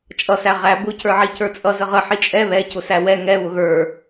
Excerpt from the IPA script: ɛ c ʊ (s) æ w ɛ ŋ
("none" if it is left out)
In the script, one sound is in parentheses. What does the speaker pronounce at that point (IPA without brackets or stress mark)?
s